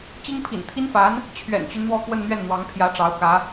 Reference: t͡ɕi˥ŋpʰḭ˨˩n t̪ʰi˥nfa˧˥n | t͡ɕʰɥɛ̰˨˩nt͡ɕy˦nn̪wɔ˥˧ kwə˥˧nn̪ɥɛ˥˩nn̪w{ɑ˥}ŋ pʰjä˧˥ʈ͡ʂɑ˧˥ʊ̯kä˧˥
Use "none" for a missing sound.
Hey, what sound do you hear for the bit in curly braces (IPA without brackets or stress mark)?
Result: ɑ˧˥